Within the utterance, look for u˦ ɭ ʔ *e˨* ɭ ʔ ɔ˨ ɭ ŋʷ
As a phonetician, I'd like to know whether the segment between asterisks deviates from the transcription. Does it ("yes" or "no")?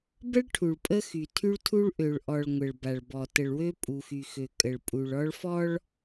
yes